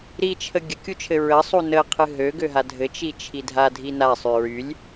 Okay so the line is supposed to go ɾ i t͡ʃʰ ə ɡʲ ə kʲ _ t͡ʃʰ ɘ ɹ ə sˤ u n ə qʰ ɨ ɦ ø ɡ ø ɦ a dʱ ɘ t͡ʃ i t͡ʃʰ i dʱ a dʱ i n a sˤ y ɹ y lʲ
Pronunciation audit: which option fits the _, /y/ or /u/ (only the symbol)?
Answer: u